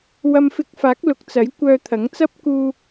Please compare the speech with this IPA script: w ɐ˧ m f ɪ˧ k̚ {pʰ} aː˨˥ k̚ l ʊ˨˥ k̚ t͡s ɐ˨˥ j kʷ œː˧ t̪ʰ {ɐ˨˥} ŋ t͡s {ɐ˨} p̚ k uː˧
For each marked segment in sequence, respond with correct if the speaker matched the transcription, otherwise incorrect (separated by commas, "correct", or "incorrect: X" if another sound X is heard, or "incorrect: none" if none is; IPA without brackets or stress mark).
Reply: incorrect: f, correct, incorrect: ɐ˥